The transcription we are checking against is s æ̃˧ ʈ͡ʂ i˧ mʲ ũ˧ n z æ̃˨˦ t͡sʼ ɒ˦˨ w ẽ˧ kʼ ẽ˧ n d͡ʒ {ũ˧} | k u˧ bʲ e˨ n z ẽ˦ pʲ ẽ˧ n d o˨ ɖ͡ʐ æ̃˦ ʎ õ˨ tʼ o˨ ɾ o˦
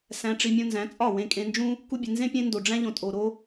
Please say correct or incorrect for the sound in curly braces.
incorrect